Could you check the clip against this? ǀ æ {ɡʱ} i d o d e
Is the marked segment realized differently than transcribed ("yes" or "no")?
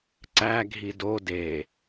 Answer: no